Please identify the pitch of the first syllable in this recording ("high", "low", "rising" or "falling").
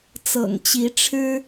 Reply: low